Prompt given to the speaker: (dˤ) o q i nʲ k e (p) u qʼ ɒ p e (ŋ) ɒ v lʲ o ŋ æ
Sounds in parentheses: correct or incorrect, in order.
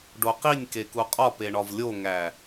incorrect: ɖ, incorrect: k, incorrect: ɳ

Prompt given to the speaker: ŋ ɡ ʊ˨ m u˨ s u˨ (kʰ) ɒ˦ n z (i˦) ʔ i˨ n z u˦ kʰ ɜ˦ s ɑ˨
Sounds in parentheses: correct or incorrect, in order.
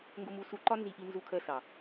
incorrect: ǃ, incorrect: i˨

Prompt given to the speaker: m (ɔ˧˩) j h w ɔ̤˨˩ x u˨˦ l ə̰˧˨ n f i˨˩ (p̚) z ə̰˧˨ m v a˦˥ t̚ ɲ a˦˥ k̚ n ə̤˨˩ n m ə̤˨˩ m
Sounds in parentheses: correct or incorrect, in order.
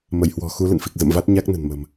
incorrect: ə˧˩, incorrect: k̚

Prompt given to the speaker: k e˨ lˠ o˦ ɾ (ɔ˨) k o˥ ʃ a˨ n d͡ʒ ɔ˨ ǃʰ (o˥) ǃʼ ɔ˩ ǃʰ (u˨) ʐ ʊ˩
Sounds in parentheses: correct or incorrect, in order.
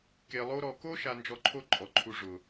correct, incorrect: o˦, correct

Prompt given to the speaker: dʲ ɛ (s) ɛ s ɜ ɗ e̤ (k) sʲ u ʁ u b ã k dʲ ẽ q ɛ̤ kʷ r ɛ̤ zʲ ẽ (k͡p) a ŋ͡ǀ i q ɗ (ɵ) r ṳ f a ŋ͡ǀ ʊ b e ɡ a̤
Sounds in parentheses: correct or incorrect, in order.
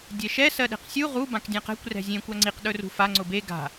incorrect: ʃ, incorrect: q, incorrect: kʷ, correct

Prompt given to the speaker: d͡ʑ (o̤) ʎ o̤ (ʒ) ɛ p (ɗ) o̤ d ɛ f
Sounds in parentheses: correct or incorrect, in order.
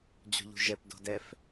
correct, correct, incorrect: d

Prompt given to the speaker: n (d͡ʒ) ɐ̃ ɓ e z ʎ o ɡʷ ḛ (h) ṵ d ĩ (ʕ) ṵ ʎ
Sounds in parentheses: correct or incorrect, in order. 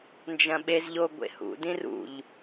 correct, correct, incorrect: r

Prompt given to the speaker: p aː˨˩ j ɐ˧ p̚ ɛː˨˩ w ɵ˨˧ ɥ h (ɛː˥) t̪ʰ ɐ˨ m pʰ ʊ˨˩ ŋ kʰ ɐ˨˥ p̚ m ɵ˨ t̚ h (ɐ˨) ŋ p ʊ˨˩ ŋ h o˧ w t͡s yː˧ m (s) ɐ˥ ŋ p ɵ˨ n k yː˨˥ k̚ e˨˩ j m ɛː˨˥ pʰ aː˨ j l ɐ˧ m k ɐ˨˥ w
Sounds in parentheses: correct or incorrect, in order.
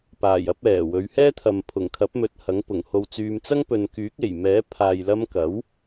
correct, incorrect: ɐ˨˥, incorrect: t͡s

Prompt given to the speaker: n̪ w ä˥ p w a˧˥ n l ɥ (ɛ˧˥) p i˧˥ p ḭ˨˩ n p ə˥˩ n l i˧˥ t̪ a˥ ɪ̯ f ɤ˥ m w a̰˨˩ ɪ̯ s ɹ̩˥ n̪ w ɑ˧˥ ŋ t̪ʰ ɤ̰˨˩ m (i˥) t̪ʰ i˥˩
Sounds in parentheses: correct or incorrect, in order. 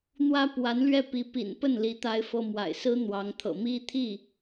incorrect: ɛ˥˩, correct

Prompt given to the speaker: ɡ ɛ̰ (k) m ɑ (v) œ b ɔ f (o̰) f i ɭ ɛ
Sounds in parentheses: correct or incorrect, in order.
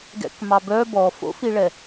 correct, incorrect: b, correct

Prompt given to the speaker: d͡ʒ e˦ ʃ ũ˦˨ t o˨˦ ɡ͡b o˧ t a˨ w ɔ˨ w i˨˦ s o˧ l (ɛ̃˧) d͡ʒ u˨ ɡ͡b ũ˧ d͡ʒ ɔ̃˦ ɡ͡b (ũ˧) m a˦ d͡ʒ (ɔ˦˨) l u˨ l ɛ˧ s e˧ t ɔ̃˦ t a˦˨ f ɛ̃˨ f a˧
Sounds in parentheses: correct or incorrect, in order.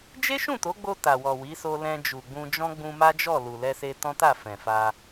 correct, correct, correct

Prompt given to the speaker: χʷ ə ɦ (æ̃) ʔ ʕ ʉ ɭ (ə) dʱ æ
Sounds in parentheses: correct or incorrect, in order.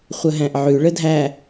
correct, correct

